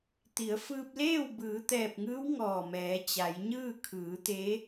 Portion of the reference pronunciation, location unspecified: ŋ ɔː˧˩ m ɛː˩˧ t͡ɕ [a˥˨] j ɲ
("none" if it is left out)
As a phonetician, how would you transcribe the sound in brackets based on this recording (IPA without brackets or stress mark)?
a˩˧